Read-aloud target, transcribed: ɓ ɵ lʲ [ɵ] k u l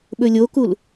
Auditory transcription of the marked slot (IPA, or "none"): o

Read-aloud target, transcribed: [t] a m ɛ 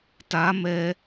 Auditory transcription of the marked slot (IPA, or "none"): t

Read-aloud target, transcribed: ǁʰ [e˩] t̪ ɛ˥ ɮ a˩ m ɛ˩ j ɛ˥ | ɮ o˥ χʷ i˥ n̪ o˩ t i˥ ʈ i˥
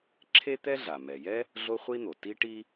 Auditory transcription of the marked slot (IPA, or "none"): e˥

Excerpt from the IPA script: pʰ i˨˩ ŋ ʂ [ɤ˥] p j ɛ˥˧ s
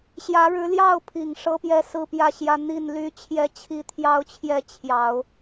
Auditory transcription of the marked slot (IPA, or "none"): ɤ˥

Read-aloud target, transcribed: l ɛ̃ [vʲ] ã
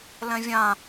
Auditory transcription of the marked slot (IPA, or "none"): vʲ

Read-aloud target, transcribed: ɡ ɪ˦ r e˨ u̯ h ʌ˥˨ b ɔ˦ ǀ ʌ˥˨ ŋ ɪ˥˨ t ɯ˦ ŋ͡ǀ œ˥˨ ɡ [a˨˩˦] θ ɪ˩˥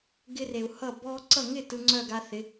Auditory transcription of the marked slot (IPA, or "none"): a˦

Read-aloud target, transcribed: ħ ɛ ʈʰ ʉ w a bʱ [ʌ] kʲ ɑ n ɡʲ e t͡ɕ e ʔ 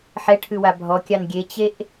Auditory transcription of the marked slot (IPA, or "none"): ɔ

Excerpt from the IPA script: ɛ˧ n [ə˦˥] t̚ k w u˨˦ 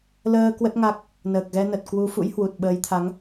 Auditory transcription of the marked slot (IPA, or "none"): ə˨˩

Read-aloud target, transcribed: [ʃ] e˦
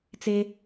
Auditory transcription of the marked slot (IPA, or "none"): t͡s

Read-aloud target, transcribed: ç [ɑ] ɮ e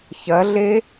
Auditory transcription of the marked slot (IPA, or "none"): ɐ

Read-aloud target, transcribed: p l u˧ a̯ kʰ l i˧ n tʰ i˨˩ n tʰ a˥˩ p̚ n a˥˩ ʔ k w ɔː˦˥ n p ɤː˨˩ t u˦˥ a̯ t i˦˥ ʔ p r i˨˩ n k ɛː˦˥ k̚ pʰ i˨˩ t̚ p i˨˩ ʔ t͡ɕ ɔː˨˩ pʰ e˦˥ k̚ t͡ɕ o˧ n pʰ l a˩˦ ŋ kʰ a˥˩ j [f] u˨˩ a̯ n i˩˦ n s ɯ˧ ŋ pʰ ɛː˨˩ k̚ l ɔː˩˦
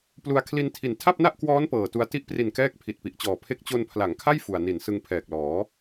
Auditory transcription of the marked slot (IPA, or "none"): f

